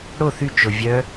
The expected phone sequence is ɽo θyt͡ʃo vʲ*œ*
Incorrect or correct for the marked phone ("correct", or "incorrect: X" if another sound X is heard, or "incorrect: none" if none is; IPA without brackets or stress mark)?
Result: correct